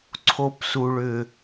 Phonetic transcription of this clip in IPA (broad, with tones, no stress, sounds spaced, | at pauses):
ǀʰ o˧ p s u˨ ɭ ʏ˨